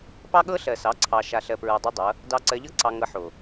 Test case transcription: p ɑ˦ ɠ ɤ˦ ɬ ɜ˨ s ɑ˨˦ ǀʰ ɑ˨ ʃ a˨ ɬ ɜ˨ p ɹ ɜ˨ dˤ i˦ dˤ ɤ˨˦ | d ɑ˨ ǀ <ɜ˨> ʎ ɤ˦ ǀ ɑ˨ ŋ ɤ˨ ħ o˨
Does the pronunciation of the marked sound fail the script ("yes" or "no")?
no